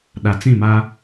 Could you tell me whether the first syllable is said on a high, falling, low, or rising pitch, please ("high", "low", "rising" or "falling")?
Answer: low